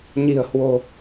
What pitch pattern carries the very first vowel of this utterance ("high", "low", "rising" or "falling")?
low